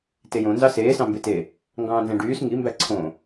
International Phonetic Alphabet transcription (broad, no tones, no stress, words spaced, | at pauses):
tejõ nzɑseː sɑ̃mbete | ŋɡɑ̃ːnzæ̃ɖyːs ŋi mbæǀʰõ